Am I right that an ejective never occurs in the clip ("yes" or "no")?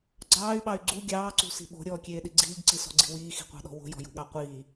yes